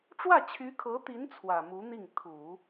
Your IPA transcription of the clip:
ʈ͡ʂ w ä˥˩ t͡ɕʰ y˧˥ kʰ ɤ˧˥ t̪ i˧˥ n t͡sʰ w ä˨˩ m u˧˥ n̪ i˥˩ ŋ t̪ʰ u˨˩˦

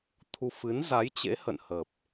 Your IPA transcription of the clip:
t̪ʰ u˧ f ɨ˨˦ n z a˨˦ j t͡ɕ ḛ˧˥ h ə̰˧˨ n h ə˨˩ p̚

